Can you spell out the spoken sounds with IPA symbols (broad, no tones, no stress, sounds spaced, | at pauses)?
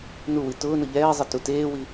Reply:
n u w i t ʊː n ʊ ʎ ɛː zˤ ɪ t u t eː w i